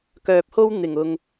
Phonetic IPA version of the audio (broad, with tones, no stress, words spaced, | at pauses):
kœː˨p̚ho˥w n̪ɪ˨˩ŋ ʊ˨ŋ